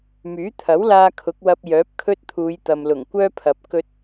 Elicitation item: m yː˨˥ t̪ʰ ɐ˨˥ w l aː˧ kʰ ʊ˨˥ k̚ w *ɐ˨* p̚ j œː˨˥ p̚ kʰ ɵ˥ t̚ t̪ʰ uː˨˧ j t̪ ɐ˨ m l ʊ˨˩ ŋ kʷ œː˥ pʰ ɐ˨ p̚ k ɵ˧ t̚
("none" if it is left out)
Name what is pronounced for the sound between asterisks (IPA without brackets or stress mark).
ɐ˧